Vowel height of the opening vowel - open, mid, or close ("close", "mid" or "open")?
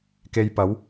mid